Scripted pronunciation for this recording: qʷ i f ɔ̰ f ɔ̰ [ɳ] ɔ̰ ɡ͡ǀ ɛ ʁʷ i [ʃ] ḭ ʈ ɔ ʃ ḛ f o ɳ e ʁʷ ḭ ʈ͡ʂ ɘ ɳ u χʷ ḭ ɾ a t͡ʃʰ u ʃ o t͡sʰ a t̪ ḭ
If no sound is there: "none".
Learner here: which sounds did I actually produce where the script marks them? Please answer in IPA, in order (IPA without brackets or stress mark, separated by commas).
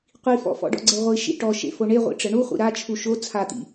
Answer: ɖ, ʃ